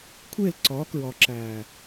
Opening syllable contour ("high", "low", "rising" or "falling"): falling